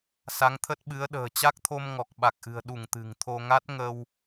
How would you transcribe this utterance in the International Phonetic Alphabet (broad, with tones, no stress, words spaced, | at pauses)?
sa˨˦ŋt̪ʰə˦˥t̚ɓɨ˨˦ə̯ɗə̤ː˨˩ t͡ɕa˦˥k̚t̪ʰo˧m ŋɔ˨˩k̚ɓa˨˩k̚ʔɨ̤˨˩ə̯ ɗu˧˩ŋ t̪ɨ̤˨˩ŋt̪ʰo˧ ŋa˦˥t̚ŋə˧w